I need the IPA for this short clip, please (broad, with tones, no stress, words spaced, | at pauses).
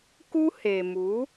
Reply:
ku˦he˨mu˨˦